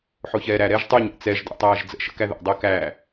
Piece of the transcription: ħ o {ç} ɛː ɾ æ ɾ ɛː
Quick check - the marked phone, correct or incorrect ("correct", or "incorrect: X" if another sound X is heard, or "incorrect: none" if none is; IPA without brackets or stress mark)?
correct